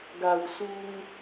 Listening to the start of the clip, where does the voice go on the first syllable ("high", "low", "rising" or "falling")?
low